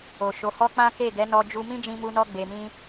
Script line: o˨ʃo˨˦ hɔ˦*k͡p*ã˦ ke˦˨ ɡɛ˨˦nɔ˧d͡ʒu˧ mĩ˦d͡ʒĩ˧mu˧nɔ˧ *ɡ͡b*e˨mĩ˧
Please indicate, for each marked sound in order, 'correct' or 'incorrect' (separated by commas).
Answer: correct, correct